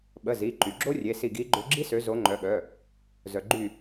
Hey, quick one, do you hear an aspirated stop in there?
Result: no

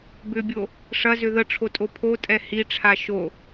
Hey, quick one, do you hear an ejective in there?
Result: yes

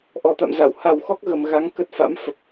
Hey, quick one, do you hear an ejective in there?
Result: no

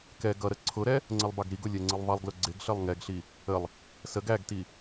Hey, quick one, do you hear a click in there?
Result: yes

